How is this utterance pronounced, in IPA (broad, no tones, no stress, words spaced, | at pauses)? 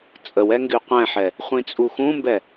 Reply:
t͡sʼəwɛ ŋɡyqʷɛ̃ħɛ | χʷĩt͡sʼuxũmbɛ